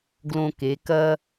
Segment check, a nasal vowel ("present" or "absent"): present